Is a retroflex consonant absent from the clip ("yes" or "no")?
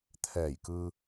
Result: yes